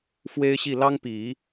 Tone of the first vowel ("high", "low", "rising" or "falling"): high